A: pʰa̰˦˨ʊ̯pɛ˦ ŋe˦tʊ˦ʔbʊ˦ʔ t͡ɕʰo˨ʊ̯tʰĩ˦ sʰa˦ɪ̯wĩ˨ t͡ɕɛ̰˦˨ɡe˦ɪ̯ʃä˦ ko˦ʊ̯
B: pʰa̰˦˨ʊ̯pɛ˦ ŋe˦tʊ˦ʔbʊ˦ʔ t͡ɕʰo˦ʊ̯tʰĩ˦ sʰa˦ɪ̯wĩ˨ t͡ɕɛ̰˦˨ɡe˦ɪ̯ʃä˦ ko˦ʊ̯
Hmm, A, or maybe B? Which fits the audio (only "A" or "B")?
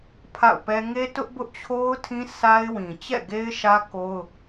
B